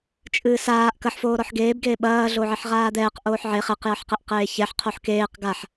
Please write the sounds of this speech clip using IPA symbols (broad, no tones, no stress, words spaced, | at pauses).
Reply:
t͡ʃʼɨːsaːʔ kɐħfoː ɾɔħɡeːbɡeː ɓɐːɮoʕeħ ʁaːd̪ɛːq ʔoːħʕe χɛqjɐħqɛʔ qeːçɛħ qʰoħkeːq ɡaħ